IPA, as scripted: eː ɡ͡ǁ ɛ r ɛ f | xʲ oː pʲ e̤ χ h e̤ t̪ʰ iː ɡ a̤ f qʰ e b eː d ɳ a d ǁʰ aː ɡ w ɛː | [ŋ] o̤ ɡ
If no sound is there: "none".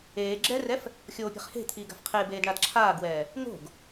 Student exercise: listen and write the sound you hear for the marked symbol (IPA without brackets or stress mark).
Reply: ŋ